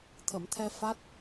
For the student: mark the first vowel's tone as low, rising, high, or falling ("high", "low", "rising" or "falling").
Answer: low